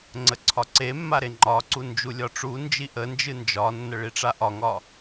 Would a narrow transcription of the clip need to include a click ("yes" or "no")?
yes